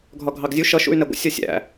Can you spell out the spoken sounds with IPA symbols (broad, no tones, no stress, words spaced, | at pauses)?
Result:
ɡʱɒɡʱɑɡzʲu ʃʌʃṵy̯nɛ ɡʷə̰ sʲɒsʲæ̰